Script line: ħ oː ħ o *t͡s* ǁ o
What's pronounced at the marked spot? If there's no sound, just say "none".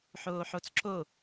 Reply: t͡s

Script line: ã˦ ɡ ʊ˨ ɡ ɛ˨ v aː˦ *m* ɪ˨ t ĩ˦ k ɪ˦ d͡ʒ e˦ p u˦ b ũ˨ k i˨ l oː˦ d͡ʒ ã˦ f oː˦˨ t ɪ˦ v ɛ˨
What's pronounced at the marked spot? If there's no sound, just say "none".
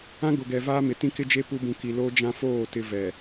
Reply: m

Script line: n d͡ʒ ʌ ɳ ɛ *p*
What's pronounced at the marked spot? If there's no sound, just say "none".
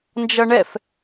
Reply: f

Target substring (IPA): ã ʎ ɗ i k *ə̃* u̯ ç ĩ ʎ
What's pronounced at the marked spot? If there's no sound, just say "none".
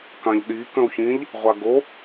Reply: ə̃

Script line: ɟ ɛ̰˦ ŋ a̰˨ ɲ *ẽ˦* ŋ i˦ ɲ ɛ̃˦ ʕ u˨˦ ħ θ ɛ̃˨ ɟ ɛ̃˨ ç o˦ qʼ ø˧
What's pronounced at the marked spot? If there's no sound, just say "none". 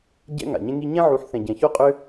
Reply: ẽ˦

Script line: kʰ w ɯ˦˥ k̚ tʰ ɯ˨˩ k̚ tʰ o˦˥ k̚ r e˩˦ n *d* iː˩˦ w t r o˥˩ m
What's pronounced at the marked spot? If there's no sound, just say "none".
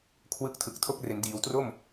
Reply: d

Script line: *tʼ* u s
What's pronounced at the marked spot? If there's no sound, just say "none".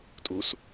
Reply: tʼ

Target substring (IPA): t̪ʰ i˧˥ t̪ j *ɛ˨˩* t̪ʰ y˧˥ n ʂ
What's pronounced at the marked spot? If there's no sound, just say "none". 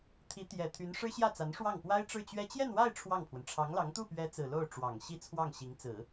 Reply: ɛ˨˩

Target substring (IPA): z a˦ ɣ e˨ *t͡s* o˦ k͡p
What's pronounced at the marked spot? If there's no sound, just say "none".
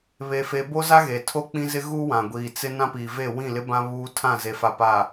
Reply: tʰ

